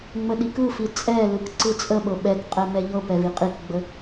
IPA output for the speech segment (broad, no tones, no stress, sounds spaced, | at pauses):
ŋ͡m ə ɗ i k ɯ f i t͡sʼ ɛ l ɯ k ǀ ɯ t͡sʼ ə ɓ ɤ ɓ ɛ k qʼ ɛ m ɛ ʎ ɤ p ɛ v i qʼ i k ɡ͡b ə